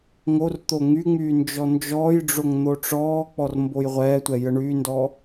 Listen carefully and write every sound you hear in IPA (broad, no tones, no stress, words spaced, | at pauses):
ŋort̪o ŋyŋ͡myː nd͡ʒɔnd͡ʒɔːjɖ͡ʐoŋ n̪oʈ͡ʂɔːk͡pɔr mbojʁʷɛːtʷɛ jəɳyːndɔ